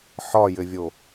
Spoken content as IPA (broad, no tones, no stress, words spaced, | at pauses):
ħɒjɘvʲo